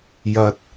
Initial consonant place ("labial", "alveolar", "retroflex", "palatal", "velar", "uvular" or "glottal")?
palatal